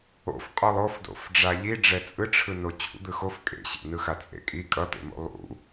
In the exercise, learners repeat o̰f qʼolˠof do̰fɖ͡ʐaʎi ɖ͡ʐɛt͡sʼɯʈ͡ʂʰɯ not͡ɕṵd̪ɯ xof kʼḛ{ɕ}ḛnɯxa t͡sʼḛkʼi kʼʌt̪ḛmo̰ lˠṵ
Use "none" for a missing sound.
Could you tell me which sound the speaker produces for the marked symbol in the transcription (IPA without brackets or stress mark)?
ɕ